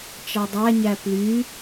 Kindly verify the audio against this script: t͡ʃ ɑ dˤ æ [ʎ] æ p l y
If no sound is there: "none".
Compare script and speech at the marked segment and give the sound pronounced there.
ɲ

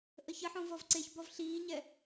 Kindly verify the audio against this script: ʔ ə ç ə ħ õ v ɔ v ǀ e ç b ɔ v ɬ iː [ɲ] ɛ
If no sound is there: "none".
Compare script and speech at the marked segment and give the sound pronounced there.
ɲ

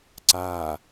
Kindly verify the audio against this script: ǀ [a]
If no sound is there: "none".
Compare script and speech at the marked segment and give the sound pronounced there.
a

